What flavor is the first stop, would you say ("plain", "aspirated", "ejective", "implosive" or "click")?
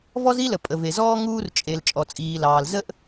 ejective